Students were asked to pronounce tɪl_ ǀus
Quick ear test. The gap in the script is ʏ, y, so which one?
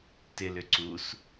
ʏ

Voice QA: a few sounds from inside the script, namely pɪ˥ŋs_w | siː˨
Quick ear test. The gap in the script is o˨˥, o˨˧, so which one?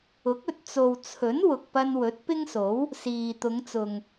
o˨˥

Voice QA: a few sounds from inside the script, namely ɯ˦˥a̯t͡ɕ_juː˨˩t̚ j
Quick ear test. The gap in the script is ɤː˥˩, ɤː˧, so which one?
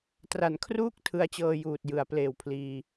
ɤː˧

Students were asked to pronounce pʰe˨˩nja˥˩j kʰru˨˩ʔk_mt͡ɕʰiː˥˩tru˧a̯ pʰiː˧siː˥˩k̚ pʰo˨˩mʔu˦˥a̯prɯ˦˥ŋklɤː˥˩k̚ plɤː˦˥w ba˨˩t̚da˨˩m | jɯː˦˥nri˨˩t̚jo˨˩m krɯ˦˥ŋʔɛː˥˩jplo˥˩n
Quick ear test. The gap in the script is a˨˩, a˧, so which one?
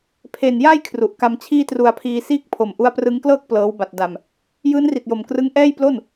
a˧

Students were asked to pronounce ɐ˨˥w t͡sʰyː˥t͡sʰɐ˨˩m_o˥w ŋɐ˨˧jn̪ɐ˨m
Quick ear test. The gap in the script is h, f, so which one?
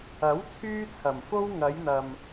f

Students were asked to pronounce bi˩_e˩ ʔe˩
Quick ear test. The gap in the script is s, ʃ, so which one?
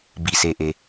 s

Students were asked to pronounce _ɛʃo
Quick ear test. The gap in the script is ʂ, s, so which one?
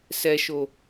s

